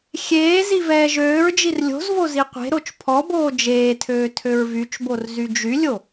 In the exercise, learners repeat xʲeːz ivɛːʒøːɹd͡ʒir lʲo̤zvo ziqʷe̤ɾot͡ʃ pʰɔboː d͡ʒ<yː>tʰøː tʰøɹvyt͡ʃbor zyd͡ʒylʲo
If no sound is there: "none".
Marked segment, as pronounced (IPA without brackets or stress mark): eː